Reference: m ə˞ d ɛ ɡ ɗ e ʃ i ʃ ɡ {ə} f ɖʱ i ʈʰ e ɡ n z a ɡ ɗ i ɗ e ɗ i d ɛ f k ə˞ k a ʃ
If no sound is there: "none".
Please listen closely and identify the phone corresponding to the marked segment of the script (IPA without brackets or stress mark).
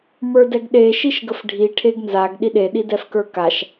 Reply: ə